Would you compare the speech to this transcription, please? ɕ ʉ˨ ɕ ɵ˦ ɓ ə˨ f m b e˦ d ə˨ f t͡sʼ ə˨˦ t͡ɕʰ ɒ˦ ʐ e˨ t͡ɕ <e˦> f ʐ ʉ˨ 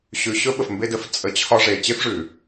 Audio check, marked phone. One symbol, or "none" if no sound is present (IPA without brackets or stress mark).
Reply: e˦